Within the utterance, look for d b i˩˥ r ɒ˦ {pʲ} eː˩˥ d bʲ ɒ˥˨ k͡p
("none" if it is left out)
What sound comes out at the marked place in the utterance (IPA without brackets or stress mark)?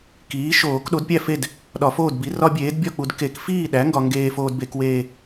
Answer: bʲ